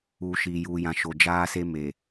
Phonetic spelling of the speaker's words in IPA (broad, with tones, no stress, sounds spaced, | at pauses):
uː˨ ʃ iː˨ j uː˨ j ã˨ ʃ o˨ d͡ʒ aː˦ s e˦ m e˨